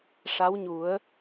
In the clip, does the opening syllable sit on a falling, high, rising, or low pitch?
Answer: rising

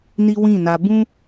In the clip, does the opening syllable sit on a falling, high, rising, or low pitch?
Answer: high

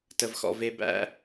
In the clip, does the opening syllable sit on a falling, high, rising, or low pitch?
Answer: low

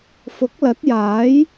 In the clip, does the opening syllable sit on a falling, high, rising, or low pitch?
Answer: rising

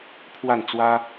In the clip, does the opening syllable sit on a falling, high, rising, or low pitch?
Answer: falling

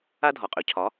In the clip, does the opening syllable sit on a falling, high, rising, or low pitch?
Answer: high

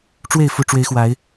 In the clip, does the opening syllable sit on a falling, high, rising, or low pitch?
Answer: falling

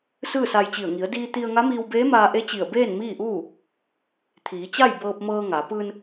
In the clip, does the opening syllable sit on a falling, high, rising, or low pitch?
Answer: falling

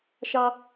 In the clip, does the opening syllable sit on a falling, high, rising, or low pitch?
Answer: high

